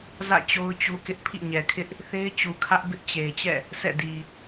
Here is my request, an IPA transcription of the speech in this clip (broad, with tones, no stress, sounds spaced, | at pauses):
z ä̰˦˨ t͡ɕ o˦ ʊ̯ t͡ɕ u˦ k ɪ˦ ʔ pʰ ḭ˦˨ ɲ ɛ˨ kʰ ɪ˦ ʔ | θ e˦ ɪ̯ t͡ɕ u˨ kʰ ä˦ ʔ b ɪ˦ ʔ t͡ɕ e˨ ɪ̯ t͡ɕ ɛ̰˦˨ | sʰ ɛ̰˦˨ d i˨